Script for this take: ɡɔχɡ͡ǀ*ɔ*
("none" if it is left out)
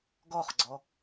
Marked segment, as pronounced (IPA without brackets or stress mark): ɔ